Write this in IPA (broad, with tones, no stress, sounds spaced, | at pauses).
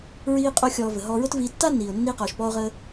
ɹ iː˥ qʼ o˥ xʲ ɔː˧ v ə˩ ɦ ɔː˧ ɹ ʊ˥ t v iː˧ tː aː˥ nː iː˩ ʊ̯ nː iː˧ q ɔː˩ ʃ p ɔː˧ ʊ̯ ʁ əː˧